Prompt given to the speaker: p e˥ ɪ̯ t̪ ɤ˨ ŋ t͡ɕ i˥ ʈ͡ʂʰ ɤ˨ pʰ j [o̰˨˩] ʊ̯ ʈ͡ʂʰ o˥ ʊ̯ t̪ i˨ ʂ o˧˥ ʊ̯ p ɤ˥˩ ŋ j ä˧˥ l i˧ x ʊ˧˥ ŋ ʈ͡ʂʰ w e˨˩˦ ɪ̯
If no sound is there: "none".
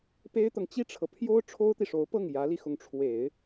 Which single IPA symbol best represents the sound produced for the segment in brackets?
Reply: o˥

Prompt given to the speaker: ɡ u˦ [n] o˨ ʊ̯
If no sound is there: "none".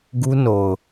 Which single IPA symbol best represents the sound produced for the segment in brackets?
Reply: n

